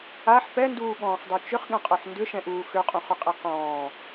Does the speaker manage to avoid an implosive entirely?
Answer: no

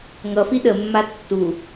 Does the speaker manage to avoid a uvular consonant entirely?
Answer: yes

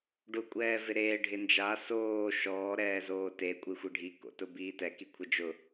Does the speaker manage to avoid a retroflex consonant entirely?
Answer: no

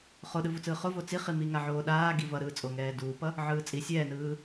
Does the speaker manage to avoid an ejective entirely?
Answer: no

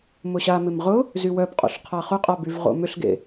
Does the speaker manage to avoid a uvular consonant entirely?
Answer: no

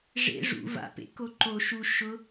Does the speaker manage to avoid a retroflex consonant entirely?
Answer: no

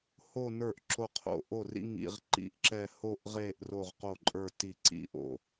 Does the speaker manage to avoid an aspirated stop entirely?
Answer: no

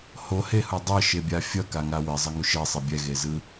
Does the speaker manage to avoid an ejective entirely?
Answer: yes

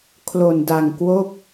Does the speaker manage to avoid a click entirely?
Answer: yes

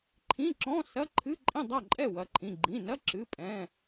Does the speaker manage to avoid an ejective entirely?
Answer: no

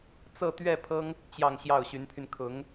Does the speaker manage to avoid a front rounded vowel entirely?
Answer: no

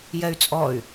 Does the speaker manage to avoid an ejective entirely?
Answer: no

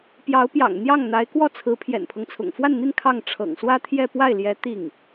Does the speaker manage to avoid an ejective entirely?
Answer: yes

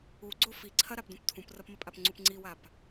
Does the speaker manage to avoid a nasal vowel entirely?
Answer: no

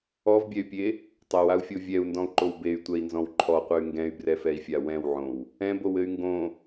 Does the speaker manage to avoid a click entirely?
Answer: no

